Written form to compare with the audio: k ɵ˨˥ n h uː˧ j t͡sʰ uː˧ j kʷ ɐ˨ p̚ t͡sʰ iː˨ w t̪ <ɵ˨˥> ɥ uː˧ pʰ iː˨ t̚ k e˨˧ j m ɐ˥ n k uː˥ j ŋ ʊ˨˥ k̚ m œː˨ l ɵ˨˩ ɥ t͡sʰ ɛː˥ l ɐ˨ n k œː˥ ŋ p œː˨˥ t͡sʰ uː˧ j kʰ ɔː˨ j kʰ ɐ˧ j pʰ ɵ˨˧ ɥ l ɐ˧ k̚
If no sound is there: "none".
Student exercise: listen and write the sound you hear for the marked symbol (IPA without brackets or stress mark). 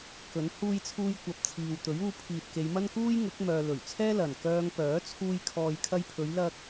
ɵ˨˥